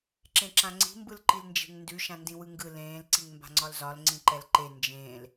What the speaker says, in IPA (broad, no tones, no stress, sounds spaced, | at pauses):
ǁ ẽ ǁ ã ŋ͡ǀ i̤ m b ɯ l ǃ i l n d͡ʒ e̤ ŋ n d ʉ ʃ ã n d ĩ w ɯ ŋ ɡ ɯ l ẽː l ǀ i ŋ m b a̤ ŋ͡ǀ ɒ l z ɒ l ŋ͡ǀ ĩ ǃ ɛ l ǃ e n d͡ʒ ẽː l